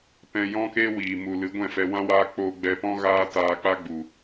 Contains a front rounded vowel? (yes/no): no